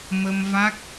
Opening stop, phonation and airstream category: plain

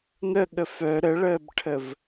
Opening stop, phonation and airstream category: implosive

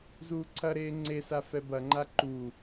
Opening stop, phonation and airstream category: click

